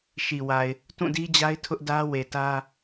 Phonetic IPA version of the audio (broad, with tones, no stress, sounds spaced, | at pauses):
ʃ i˨ w a˨ ɪ̯ | t ũ˦˨ d i˦ d͡ʑ a˦ ɪ̯ tʰ ʊ˦ ʔ d ä˦ w e˨ t ä˦